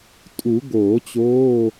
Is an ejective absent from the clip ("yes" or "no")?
no